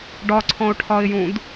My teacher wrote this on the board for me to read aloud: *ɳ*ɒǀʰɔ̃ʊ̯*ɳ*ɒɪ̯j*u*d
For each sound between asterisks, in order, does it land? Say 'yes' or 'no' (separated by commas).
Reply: no, no, no